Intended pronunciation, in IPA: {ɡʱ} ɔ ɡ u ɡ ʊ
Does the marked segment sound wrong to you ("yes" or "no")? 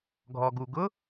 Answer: no